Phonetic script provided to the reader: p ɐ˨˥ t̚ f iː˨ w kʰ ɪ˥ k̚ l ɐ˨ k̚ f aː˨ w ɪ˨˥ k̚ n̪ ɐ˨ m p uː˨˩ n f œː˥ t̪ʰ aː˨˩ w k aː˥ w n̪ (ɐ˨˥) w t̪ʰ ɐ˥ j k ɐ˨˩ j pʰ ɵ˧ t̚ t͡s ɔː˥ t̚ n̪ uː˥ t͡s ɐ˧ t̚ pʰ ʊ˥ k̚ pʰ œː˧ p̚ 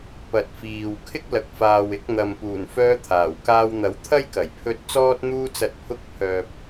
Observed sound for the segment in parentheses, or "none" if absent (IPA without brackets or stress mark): ɐ˨˥